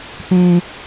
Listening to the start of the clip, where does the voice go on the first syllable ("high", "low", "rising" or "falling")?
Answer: high